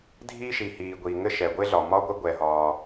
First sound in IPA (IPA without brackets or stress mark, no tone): dʱ